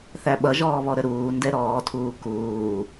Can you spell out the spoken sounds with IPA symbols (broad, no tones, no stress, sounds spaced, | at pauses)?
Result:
θ æ ɓ ʌ ʒ ɔː β ɔ ɾ ə ɾ uː n d ɛ ɾ ɔː tʰ uː k uː